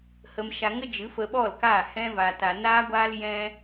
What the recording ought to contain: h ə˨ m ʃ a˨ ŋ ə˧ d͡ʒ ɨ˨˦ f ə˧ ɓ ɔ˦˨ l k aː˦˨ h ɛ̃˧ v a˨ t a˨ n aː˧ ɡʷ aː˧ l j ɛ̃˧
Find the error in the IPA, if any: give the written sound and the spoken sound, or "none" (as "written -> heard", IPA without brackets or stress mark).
none